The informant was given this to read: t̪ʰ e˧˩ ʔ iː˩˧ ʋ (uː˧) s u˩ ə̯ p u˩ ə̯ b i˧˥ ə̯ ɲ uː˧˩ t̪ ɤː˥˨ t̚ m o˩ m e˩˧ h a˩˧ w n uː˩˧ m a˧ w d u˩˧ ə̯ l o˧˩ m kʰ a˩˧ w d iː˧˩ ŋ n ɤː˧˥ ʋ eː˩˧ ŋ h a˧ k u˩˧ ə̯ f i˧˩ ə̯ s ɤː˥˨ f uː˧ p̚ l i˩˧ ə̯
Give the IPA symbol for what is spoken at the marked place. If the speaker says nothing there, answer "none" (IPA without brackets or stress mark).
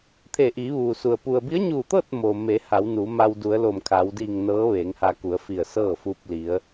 uː˩